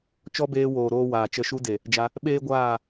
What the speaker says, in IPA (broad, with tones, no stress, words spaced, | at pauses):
t͡ʃɔ˦beː˧woː˨ɾoː˧ waː˨t͡ʃə˧ ʃu˧de˨ | d͡ʒa˧ | ɓeː˦ɡʷaː˦˨